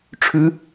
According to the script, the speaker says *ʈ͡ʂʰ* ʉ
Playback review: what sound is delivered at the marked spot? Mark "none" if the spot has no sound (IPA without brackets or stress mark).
ʈ͡ʂʰ